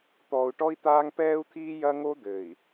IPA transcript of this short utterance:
t̪ɔː˨u̯ʈɔ˦i̯t̪aː˦ŋ pɛː˦u̯t̪ʰiː˦jɐ˦ ŋo˦d̪ɘː˨i̯

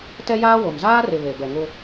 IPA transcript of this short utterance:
tɛ˦jaː˦wo˨m zaː˦rɪ˨ βe˨bɛ˨ŋʊ˦

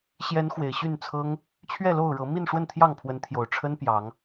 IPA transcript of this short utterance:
ɕjɛ˨˦n xwe˨˩ɪ̯ɕy˥˨nt͡sʰɤ˦ŋ | t͡ɕʰɥɛ˥˨lo˥˨ʊ̯ɻɤ˨˦ mi˥˨nʂwə˥˨nt̪ʰjɑ˥˨ŋpʰwə˨˦n t̪ʰjo˨˩ʊ̯ʈ͡ʂʰə˦n pjɑ˨˦ŋ

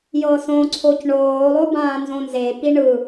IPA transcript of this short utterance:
jɤsõǀʰoc ɳoːlˠo bãːnzõnzepi ɳɯ

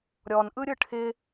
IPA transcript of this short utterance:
ɾʲɔnʔɯ ɾʲɯʈʰɪ

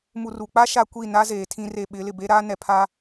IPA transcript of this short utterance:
mu˨ru˨k͡pa˦ ʃa˦kʷi˦˨ na˦zeː˨ tʰĩ˦re˦˨ ɓɪ˨˦ lɪ˨be˦ɾaː˦ nɛ˨pʰaː˦

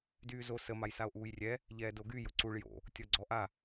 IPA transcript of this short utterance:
dyːzo sə majsao̯ʔuːjrʲɛ | ʎɛːdoɡy jʊǀuɭ jo̰ | tʲɔɡ͡ǀɔʔa

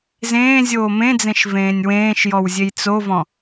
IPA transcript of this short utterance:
zẽːzʲoː mẽd͡zẽʃ vẽːnʲwẽːʃjɔw zʲejt͡sovɔ̃

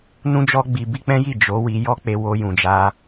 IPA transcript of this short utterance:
nũ˦d͡ʒɔ˦ɡ͡bi˧ bi˦k͡pɛ̃˦ji˦˨ d͡ʒo˨˦ wi˧jɔ˦k͡pe˧ wo˧jũ˨d͡ʒa˧

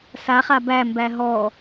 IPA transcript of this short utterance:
saχa bæmbæ ɦɔ

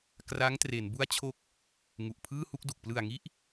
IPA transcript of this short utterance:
kra˦˥ŋtre˩˦n bu˦˥a̯t͡ɕʰo˦˥k̚ | ŋu˨˩ʔpʰɯː˥˩hu˥˩k̚du˨˩k̚ plɯ˨˩a̯ŋi˦˥ʔ

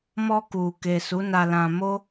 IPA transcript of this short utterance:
mɔ˧ku˨ke˨ su˨˦ na˧lã˧ mo˦

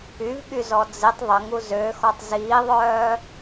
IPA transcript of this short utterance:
yvɠyzɔ d͡zitˤ ðˤəŋu zøxɔtˤ ziːðˤœː

